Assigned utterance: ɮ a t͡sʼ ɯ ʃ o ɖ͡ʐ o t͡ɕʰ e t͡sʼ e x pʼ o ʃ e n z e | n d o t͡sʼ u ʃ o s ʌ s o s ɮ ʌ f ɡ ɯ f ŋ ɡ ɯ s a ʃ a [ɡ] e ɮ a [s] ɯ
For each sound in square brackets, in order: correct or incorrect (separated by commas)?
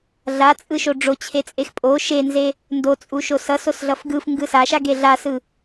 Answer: correct, correct